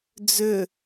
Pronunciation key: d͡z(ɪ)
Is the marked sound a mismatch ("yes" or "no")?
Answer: yes